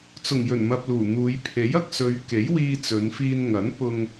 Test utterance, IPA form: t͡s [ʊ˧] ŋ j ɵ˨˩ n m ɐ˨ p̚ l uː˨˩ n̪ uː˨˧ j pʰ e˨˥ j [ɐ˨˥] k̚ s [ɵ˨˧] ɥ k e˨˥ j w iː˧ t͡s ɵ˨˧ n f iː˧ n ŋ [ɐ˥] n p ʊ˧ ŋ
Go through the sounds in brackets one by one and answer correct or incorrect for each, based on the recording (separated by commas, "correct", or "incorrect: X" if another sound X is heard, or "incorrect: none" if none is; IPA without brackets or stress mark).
incorrect: ʊ˨˩, incorrect: ɐ˧, correct, incorrect: ɐ˨˥